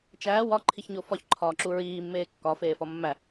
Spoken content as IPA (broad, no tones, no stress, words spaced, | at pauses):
t͡ʃæː wɒǃʰiçɲo fɒçǃʰɒːǁu ɹiːmːeː kːɒfeːfɒ mːæ